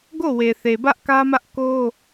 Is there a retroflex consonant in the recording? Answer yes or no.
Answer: no